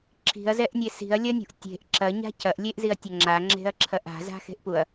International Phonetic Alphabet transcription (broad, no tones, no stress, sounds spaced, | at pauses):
ǁʰ i̤ ɐ̯ z ɛ ʔ nʲ e s i̤ ɐ̯ lʲ ɐ nʲ ṳ ʔ tʲ e̤ ʔ ǁ ɐ ɲ a̤ cʰ ɐ ʔ lʲ e ʔ z i ɐ̯ tʲ ɐ ŋ͡ǁ a ŋ͡ǁ e̤ ɐ̯ ǁʰ ɐ ʔ a̤ z a̤ x e̤ ʔ p u ɐ̯